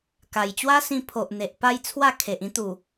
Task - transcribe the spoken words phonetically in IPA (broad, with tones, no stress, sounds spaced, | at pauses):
k a˨˩ j t͡ɕ w a˦ s ĩ˧ pʰ o˨ ʔ n̪ e˨ ʔ p a˥˧ j t͡sʰ w a˥˧ kʰ e˨ ʔ ĩ˦ t̪ u˨˩